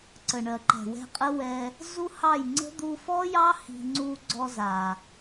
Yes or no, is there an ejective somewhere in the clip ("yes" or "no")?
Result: yes